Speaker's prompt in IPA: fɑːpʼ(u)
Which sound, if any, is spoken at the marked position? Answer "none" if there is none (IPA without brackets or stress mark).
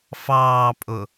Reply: ʊ